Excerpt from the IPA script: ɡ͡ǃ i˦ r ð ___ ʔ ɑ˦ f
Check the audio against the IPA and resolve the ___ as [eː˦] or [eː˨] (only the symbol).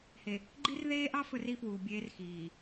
eː˦